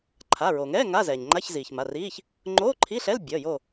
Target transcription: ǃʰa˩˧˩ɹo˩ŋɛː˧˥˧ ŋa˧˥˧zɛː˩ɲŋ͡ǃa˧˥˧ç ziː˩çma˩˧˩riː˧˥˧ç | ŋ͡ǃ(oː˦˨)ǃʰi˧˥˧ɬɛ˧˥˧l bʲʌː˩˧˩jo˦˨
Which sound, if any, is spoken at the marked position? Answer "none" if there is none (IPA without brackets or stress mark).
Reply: oː˧˥˧